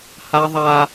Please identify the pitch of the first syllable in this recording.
high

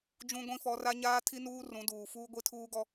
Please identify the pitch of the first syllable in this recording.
high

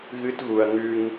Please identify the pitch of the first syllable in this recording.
high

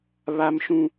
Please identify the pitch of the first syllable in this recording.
high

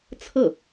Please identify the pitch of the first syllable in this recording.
falling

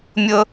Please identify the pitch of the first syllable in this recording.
high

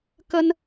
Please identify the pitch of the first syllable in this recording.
high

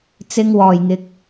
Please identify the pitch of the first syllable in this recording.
low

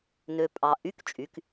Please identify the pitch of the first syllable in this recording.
low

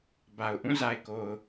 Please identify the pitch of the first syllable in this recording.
low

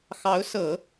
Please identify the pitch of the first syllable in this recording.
rising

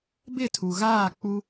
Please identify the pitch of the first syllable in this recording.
falling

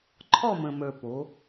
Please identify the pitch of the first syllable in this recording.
falling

